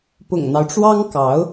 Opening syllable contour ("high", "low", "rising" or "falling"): low